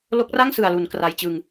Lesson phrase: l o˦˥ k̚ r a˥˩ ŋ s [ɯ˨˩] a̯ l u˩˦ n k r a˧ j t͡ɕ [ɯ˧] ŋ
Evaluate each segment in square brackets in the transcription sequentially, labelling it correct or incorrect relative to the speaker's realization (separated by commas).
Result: correct, correct